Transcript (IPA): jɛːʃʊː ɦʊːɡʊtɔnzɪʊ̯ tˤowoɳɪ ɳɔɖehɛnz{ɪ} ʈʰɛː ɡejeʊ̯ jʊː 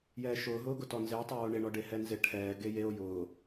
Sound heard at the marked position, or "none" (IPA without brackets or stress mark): ɪ